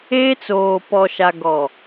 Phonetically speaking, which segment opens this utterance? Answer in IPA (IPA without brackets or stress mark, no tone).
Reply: eː